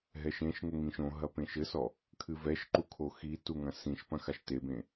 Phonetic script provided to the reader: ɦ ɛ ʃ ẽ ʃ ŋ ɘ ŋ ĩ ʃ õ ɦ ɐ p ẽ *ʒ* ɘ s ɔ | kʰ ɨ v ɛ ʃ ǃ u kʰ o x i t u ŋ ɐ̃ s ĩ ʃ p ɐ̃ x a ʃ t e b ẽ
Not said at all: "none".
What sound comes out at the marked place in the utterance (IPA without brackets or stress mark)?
ʃ